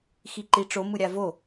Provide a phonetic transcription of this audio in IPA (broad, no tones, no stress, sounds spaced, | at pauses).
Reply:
x i ǃ i ʈ͡ʂ o m ɯ ɾʲ a v o